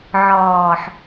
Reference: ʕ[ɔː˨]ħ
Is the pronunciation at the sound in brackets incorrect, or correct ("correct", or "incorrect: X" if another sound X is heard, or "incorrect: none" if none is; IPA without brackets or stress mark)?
correct